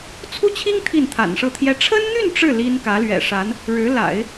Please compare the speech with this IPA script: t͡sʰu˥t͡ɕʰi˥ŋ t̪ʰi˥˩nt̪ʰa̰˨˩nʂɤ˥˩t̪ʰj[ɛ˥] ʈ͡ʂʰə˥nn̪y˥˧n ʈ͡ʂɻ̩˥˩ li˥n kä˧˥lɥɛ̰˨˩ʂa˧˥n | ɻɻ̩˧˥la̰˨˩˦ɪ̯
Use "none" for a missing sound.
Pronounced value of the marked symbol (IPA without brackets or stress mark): ɛ˥